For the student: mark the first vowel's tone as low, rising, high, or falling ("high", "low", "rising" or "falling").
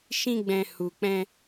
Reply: high